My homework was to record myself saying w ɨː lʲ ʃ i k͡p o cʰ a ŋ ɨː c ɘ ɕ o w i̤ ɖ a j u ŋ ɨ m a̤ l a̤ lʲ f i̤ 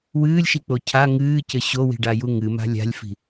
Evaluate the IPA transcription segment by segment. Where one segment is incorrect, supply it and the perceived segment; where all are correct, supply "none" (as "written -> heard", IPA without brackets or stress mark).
l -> lʲ